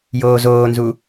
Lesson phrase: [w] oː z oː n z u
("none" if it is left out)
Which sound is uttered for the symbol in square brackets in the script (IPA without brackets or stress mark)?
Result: j